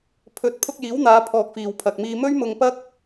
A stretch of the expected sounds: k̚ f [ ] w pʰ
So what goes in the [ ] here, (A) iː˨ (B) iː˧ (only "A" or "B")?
A